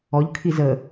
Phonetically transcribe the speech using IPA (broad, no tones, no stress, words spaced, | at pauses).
ɔʎ kʰizə